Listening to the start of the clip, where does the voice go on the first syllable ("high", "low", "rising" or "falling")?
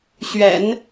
low